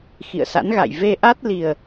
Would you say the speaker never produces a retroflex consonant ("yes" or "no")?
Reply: yes